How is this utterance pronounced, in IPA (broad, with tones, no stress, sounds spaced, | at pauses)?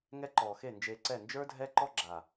ŋ ɛ˦ ǃ ɔː˨ x e˦˨ n d͡ʒ eː˧ ǀ ɛ˦˨ n d͡ʒ ə˞˦ dʱ ɛ˦ ǃ ɔ˦ ɡ͡ǁ a˨